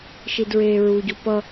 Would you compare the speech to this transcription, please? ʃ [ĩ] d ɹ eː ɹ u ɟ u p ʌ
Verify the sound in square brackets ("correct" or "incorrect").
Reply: incorrect